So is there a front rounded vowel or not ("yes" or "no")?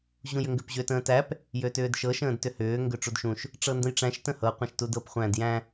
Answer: yes